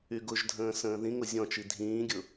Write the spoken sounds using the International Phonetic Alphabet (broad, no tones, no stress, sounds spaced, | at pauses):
y ɡ ʊ ʒ dʱ ə̃ː s ə̃ː ð ĩ ŋ ʊ zʲ ɔ̃ t͡ʃ i dʱ ĩː ɡʲ ʊ